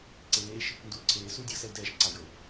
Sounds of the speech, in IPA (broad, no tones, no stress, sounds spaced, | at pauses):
ǀ eː ʃ | n d u y̯ ǀʰ eː s u y̯ dʲ ɤ s ɛ u̯ d ɛː ʃ ǀ a u̯ j ɤ y̯